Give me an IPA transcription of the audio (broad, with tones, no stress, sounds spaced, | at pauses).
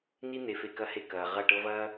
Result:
n i˦ n̪ e˧ f e˧ k ɐ˦˨ h e˦˨ k ɐː˨ ʁ ɐ˦˨ ʈ ɤ˦ v ɐː˦